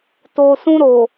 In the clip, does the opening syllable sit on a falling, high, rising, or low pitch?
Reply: low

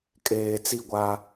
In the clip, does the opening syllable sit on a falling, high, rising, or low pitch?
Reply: low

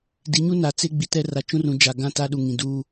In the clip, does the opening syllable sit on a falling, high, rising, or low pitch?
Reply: rising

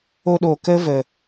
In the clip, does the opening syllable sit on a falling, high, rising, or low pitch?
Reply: high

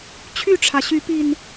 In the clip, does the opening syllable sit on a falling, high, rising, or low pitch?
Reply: falling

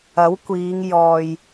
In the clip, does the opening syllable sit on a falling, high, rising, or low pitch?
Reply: rising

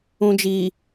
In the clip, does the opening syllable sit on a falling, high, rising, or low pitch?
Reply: low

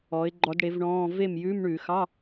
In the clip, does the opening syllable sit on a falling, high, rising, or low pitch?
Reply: rising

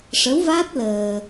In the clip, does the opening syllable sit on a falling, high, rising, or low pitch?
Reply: rising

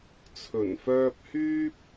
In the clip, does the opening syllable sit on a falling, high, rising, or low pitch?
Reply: low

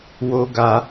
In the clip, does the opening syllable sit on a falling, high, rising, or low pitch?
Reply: high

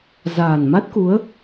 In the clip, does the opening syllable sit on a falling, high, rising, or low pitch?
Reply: low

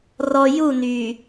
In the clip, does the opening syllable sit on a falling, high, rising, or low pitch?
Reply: low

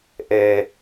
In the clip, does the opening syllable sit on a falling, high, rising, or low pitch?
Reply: low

